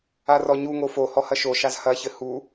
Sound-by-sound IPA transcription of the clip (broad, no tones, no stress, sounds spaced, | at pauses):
a r ɔ ɲ u ŋ o f o h ɔ h ɐ ʃ o ʃ a z h ɐ ç ɘ h u